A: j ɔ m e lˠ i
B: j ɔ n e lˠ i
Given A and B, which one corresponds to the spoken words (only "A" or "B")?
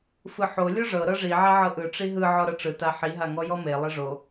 A